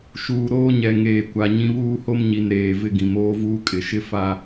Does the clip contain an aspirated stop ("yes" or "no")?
no